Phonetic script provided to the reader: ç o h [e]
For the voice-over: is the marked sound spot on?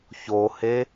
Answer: yes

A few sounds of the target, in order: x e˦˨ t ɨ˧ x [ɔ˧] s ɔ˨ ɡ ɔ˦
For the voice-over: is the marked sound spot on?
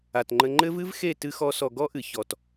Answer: yes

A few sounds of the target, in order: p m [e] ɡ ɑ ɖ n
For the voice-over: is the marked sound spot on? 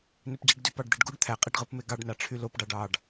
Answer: yes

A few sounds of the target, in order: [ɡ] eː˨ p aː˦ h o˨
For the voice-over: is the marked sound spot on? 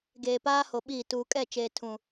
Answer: yes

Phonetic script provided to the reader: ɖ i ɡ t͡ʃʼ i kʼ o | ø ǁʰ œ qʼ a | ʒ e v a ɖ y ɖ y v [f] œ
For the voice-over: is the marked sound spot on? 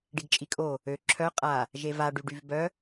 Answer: no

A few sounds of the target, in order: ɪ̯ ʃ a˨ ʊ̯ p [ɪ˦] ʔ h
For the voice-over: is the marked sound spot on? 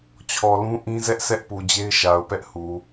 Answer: no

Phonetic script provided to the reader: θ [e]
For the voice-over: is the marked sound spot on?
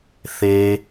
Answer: yes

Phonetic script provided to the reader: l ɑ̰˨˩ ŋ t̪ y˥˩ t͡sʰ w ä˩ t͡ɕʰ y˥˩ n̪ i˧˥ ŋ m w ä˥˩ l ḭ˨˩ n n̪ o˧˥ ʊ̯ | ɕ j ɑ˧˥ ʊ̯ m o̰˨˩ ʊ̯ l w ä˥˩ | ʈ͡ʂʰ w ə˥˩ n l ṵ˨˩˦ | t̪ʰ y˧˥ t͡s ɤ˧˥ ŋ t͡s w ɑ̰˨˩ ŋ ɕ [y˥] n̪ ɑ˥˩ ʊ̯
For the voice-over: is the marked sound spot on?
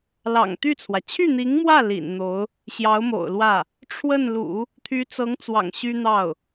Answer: yes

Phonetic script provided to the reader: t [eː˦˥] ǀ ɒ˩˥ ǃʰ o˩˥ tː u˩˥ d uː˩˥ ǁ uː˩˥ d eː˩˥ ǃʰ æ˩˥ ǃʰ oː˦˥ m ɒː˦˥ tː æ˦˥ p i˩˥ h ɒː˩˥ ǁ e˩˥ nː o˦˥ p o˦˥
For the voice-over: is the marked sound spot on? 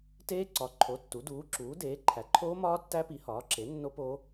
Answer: yes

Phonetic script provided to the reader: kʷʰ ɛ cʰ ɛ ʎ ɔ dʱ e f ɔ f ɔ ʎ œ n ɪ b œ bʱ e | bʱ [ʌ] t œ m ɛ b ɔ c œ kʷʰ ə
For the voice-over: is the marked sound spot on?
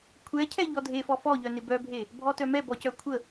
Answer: no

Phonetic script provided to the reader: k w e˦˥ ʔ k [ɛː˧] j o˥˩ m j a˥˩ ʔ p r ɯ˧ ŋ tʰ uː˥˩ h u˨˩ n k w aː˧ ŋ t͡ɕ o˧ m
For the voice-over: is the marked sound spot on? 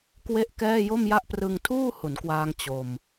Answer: no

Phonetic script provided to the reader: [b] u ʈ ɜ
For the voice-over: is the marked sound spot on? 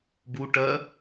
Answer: yes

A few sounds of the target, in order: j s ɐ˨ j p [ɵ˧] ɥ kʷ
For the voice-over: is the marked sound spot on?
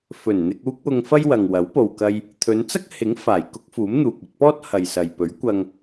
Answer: no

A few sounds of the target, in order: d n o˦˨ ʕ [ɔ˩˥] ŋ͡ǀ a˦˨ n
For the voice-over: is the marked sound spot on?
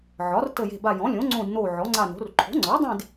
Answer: yes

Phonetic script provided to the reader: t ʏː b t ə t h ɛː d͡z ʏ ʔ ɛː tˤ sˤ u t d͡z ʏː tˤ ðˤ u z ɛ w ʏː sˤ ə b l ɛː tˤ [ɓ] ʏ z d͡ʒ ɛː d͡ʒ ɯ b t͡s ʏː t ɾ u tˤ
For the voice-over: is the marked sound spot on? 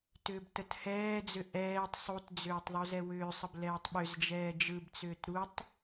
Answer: yes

